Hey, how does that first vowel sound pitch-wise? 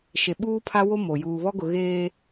low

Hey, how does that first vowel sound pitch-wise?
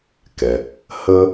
low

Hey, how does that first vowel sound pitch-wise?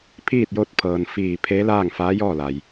falling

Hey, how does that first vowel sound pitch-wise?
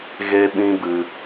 high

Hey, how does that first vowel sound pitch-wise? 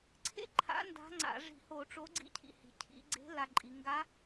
high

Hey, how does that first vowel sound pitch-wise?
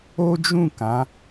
high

